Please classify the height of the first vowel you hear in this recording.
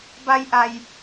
low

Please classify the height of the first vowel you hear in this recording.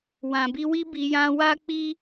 low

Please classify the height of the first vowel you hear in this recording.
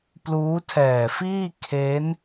high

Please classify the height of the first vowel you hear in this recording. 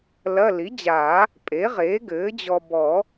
low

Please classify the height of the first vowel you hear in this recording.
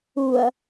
high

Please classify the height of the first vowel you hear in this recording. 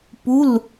high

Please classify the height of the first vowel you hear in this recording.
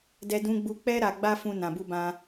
mid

